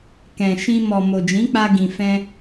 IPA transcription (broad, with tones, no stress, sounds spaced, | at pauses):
k ɛ̃˨ ʃ ĩ˧ m ɔ˨ m o˨ d͡ʒ ĩ˨˦ k͡p a˧ ɡ ĩ˨ f ɛ̃˧